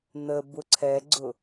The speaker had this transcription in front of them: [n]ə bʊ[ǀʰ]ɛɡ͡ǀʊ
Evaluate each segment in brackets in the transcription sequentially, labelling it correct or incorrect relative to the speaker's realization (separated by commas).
correct, correct